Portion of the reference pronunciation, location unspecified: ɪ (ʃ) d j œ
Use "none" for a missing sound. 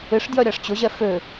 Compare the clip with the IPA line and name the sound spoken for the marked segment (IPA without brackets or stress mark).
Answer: ʂ